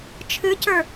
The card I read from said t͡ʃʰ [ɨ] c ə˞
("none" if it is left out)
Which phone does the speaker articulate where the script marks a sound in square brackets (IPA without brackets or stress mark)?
ɨ